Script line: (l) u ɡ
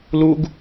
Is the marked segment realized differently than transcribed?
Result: no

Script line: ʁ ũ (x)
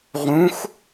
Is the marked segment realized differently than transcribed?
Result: no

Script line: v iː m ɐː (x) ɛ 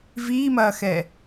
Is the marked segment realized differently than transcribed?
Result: no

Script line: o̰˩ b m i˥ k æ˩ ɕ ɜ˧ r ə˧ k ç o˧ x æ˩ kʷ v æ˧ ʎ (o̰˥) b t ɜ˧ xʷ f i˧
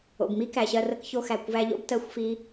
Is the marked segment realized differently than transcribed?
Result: no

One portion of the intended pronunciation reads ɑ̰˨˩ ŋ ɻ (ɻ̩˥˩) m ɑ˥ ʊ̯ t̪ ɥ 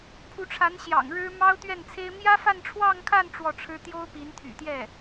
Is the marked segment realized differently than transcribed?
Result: yes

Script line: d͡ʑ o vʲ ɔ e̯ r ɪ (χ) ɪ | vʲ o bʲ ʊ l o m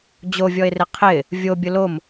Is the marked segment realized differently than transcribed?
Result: yes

